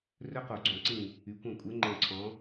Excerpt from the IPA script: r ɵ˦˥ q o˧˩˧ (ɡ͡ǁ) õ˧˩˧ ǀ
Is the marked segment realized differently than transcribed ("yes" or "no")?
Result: yes